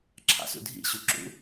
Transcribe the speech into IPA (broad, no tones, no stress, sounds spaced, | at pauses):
ǁʰ ɑ̰ s ṵ dʱ ḭ ɕ u ǁ ṵ